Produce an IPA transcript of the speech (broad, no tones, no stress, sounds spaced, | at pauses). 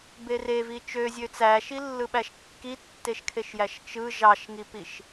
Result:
b e r e v i t͡ʃ ø zʲ ø t͡s æ ʃ i lː ɯ ɓ æ ʃ kː i tː e ʃ kʰ e ʃ j æ ʃ t͡ʃ ɯ ʒ ɑ ʃ ŋ i p i ʃ